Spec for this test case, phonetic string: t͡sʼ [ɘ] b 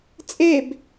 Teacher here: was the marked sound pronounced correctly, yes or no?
no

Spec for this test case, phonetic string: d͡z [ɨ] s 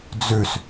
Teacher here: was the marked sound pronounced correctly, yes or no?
no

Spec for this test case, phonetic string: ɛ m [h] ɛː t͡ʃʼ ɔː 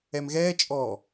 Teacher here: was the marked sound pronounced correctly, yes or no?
no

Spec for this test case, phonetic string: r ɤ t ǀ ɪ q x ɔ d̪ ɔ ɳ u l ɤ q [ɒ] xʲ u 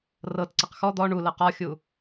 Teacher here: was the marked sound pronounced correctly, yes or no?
yes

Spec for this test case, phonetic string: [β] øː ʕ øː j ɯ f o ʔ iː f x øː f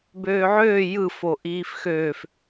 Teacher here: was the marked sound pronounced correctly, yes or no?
no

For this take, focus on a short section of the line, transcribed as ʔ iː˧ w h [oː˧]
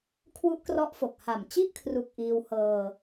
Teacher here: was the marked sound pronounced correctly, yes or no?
no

